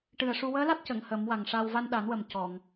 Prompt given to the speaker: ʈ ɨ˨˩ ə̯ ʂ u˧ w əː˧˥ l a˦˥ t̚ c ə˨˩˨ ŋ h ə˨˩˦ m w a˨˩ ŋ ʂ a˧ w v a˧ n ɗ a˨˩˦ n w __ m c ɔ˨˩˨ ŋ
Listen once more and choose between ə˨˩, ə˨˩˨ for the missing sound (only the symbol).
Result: ə˨˩